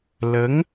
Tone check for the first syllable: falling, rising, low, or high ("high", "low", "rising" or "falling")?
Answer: rising